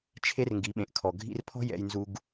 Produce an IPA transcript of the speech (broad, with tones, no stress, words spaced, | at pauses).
t͡ʃʰe˥rŋɡi˩˧ɓẽ˩ʔkʰɔ˩ ɡʱḭ˧rpʰɔ̤˥ jɛ̰˧jnzu˧ɡ